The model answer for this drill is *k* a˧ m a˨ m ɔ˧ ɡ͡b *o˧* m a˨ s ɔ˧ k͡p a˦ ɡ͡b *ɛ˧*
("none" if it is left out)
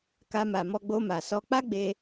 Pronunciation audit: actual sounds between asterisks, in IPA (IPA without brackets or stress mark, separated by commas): k, o˧, e˧